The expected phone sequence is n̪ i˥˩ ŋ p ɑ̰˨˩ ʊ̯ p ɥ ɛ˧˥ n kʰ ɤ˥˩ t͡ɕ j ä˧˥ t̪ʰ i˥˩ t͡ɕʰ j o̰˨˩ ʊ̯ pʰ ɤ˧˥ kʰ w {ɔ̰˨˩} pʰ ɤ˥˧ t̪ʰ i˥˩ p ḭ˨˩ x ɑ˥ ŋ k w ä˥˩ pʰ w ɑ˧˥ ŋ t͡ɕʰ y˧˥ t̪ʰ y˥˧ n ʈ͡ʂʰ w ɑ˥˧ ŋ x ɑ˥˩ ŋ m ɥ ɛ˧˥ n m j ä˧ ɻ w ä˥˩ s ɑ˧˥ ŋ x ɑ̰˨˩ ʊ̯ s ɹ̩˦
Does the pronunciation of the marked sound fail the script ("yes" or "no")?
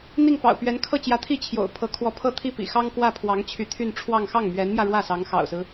yes